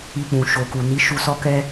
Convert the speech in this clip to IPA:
i˧ k͡p ũ˨ ʃ o˨ k u˨ n i˨˦ ʃ u˧ s ɔ˦ k ɛ˦

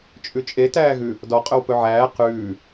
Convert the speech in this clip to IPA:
t͡ʃʼ ʉ t͡ʃʼ e t æː ɣ ʉ | d ɔ qʼ ɵ w p ɵ ʕ æː q ʉː

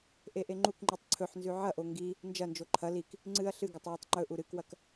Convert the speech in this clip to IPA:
ʔ e ʔ e ŋ͡ǃ u k ŋ͡ǃ ʉ tˤ ǀʰ ɵ ħ n z ʉ ʕ ɐ ʔ o ŋ ɡ i | n d͡ʒ ɐ n d͡ʒ o ǃʰ ɐ l i k | ŋ͡ǀ ɨ ɐ̯ ɬ ɨ ɡ ɵ tˤ w e tˤ ŋ͡ǃ ɵ ʔ u ɾ ɨ k w ɐ k

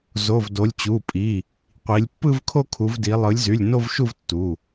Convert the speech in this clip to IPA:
z o˩˧˩ v d o˩˧ lʲ t͡ɕ u˩˧˩ pʼ i˩˧˩ | qʷ i˩˧ lʲ pː ɯ˥˧ v kʰ o˥˧ kʰ u˩˧ v d i˩˧ lˠ ɯ˩˧ lʲ z y˩˧˩ lʲ n o˥˧ v ʃ u˥˧ v tː u˩˧˩

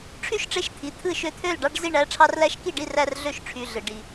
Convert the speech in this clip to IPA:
ʈ͡ʂʰ y˥˧ ʃ ʈ͡ʂ e˧˥ ʃ t̪ʰ i˩˧˩ t̪ʰ ɯ˥˩ ʃ ø˧˥ t̪ʰ ø˥˩ l ɖ ɑ˥˧ ɖ z i˥˩ ɳ æ˧˥ ʈ͡ʂʰ ɑ˧˥ r l æ˧˥ ʃ k i˥˩ ɖ i˥˩ r æ˥˧ r ɮ ø˥˩ ʃ ʈ͡ʂʰ y˩˧˩ ɮ ɯ˩ ɖ i˩

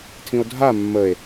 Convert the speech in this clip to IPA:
tʰ ĩ o̯ dʱ a mː ə e̯

